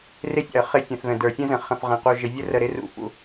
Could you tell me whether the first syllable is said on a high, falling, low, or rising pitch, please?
high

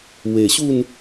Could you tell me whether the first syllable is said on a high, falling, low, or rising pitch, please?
low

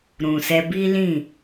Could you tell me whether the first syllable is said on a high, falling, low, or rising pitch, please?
low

